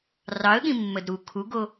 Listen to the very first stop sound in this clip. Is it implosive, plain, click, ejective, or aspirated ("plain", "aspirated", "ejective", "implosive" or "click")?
implosive